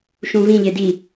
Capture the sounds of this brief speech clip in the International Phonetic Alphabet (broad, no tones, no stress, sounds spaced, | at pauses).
ʃ ũ v ĩ ʎ e d i